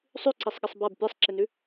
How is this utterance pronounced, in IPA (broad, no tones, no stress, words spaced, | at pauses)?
sˤʉǀisˤɠɪsˤ bab pʲasˤǁɪnʉ